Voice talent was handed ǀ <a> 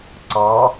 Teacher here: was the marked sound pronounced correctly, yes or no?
no